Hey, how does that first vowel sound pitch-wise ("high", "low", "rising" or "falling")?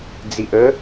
low